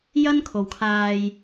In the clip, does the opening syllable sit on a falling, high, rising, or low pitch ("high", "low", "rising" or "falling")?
high